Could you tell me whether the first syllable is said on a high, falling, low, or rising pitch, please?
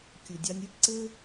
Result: low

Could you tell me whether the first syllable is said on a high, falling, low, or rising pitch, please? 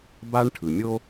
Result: high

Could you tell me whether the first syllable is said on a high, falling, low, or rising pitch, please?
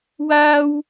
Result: high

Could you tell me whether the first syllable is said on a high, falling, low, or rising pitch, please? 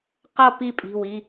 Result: falling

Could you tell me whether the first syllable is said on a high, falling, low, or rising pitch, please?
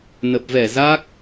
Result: low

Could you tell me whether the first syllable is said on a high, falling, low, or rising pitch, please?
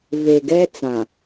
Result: low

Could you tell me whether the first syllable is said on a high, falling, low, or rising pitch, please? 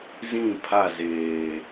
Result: falling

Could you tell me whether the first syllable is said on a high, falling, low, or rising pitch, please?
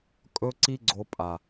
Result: high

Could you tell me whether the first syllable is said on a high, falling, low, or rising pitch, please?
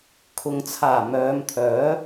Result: low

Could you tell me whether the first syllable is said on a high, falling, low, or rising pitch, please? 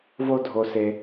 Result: low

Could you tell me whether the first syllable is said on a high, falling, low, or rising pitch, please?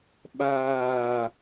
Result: falling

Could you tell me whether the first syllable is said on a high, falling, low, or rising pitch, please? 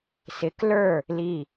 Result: rising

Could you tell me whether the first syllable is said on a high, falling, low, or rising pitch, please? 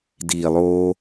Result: low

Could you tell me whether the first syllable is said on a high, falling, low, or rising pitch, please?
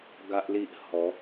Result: high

